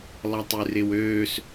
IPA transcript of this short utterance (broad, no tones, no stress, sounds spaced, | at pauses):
lˠ ɐ tˤ ʉ r ɪ w øː s